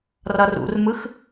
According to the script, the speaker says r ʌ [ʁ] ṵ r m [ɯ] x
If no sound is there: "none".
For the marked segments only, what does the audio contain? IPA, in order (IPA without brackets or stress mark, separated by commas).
r, ɯ